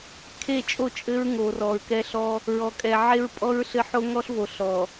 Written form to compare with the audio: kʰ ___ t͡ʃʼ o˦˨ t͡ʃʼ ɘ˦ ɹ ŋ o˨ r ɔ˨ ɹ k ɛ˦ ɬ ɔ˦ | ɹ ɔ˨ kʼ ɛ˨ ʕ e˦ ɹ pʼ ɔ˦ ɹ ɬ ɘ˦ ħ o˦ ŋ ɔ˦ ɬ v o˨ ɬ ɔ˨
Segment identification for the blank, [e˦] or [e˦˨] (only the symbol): e˦˨